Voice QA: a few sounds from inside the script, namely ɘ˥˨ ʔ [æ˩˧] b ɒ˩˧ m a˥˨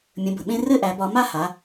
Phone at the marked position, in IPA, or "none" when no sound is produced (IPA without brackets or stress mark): æ˩˧